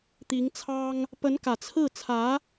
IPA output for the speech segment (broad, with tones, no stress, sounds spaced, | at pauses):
t̪ i˧˥ ŋ t͡sʰ ɑ˥ ŋ | p ə˧˥ n k ä˨˩ t͡sʰ ɹ̩˥˩ t͡sʰ ä˧˥